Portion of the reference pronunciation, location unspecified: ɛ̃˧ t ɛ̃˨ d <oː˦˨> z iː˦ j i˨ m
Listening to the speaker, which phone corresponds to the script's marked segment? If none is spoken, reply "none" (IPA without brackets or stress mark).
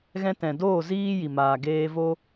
oː˦˨